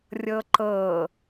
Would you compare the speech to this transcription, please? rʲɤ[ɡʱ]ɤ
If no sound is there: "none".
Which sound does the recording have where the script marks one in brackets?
ǃ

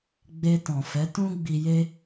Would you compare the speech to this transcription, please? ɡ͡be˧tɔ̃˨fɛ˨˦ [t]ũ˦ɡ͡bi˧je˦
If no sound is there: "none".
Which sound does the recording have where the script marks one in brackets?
t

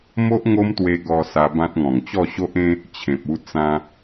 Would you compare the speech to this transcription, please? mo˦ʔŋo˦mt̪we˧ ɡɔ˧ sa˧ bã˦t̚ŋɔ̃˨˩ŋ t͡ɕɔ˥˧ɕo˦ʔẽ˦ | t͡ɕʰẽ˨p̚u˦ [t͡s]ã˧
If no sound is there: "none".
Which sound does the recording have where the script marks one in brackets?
t͡s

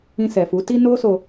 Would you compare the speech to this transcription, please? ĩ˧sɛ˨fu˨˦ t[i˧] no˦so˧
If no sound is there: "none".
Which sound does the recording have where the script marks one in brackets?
i˧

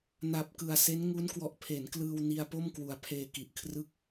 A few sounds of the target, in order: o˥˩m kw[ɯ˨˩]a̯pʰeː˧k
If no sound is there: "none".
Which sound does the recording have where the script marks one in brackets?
u˨˩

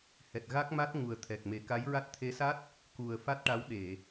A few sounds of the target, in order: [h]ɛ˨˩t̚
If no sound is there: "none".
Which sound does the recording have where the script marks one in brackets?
h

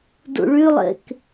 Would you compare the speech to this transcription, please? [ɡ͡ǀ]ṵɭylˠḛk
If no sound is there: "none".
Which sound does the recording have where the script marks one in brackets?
d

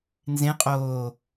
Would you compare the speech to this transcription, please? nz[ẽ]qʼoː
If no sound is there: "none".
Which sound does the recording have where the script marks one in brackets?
ẽ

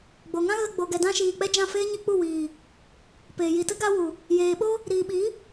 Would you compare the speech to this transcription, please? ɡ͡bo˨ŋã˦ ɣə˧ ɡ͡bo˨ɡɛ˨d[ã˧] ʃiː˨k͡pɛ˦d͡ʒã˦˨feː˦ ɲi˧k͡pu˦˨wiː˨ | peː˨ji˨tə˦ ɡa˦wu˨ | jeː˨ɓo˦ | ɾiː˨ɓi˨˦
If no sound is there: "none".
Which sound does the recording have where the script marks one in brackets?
ã˧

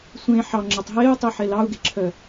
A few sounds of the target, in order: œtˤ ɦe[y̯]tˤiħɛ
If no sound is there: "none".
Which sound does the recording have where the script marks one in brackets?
y̯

